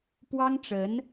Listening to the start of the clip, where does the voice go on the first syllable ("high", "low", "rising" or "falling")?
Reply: high